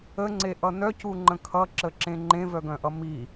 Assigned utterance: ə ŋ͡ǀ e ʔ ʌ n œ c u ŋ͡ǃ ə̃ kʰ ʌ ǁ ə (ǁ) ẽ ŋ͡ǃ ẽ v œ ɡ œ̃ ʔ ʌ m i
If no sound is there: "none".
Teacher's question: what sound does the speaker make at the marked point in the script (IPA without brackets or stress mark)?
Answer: ǁ